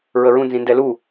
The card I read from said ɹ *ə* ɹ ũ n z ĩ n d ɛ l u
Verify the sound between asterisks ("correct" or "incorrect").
correct